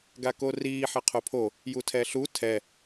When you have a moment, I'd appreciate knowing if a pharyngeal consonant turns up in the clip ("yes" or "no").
yes